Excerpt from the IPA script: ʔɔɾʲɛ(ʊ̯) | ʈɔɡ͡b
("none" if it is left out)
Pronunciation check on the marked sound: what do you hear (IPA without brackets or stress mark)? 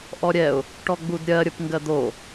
ʊ̯